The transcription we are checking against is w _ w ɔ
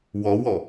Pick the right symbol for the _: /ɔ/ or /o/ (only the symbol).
ɔ